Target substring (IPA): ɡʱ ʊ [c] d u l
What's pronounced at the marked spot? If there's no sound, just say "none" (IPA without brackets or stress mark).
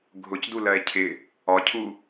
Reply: c